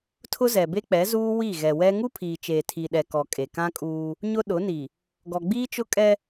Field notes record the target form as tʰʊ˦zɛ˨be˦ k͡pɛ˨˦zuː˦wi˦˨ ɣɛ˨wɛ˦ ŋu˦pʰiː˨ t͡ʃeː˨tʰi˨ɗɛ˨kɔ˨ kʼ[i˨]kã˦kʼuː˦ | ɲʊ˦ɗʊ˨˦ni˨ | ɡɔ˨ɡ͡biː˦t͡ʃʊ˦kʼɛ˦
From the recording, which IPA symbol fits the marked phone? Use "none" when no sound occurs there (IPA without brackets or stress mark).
e˨